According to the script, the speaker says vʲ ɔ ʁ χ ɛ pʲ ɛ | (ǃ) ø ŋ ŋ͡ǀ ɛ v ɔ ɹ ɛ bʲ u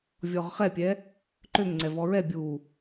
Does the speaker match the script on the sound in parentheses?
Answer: yes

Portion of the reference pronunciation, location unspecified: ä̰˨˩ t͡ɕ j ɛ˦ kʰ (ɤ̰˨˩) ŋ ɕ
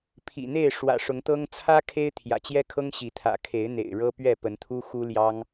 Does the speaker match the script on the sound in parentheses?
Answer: no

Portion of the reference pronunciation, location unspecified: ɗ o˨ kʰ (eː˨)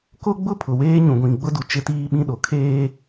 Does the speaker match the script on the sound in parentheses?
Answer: no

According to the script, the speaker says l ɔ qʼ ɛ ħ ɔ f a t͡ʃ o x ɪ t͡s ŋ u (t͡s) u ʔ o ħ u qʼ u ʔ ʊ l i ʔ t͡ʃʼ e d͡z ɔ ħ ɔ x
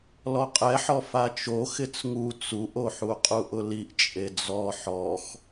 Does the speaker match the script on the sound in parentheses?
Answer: yes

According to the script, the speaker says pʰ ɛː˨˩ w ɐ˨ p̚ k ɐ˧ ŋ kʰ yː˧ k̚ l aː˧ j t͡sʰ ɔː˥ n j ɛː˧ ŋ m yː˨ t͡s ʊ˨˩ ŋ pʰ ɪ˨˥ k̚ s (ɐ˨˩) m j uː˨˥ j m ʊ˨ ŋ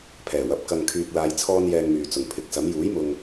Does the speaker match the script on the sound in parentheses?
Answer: no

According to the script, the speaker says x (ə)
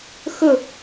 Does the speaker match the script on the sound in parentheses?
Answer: yes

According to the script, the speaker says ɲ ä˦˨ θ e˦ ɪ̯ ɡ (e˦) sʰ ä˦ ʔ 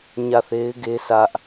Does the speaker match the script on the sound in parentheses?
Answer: yes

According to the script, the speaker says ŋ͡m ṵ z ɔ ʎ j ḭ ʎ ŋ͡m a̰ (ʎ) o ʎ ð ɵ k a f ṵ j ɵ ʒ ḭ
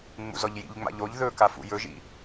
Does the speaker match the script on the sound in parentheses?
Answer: yes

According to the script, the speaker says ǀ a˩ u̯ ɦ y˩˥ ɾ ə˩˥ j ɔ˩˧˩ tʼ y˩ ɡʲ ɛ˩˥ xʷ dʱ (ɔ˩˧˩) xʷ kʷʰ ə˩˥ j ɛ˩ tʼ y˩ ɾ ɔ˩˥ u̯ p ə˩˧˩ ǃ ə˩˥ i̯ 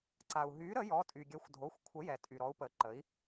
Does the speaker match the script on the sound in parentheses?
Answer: no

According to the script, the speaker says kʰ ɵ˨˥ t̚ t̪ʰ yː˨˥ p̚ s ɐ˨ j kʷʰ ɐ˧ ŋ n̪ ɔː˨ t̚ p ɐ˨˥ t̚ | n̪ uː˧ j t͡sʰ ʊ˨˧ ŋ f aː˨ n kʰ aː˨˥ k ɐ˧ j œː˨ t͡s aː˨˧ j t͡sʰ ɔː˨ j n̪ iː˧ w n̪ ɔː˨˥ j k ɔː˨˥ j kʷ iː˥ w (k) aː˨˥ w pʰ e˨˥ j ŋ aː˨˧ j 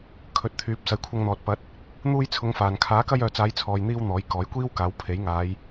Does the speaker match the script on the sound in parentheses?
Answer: yes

